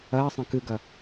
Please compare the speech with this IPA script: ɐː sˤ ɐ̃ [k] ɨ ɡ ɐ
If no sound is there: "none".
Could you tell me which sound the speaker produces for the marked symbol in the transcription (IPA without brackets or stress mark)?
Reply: k